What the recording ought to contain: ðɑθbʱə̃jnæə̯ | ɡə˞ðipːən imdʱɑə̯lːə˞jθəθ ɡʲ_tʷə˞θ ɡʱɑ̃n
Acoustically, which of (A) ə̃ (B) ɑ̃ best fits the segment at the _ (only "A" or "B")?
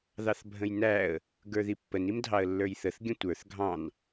A